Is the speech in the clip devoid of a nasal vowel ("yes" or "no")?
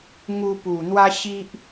yes